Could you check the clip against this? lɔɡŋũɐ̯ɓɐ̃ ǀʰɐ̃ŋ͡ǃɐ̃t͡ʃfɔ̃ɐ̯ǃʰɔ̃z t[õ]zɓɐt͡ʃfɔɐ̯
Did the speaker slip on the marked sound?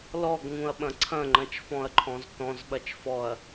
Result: yes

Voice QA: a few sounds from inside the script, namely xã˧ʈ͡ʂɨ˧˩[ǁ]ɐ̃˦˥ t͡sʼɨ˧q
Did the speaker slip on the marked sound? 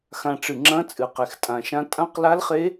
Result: yes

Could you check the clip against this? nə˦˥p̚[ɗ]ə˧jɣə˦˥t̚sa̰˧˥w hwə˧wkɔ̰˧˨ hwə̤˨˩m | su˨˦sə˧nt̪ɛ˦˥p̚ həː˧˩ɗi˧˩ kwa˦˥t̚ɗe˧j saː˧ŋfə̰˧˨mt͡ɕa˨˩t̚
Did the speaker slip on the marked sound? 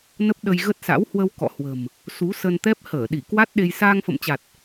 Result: no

